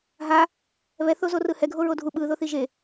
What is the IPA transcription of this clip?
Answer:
ɦa | βɛ θozorɯhɛ ɡʱoɹodʱu ɓɯ ðoθiʒe

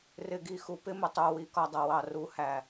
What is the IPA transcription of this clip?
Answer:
rɪ˨ɡi˨xu˨pɪ˦ mə˨ tˤu˨ wi˧kɒ˧dˤʌ˨ wɑ˨ru˨˦hæ˨

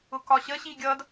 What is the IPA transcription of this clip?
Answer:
ʊkɒɕəɕi ɡʲʌd

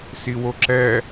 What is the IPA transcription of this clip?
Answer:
siwoǁɛ

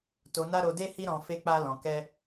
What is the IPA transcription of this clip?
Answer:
to˧na˦ ɾo˧de˦hi˦ ɾɔ̃˧ fe˦k͡pa˦ lɔ̃˧ kɛ˦

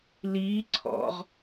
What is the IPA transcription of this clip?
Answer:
liː ǀʰɔ̰ʁ

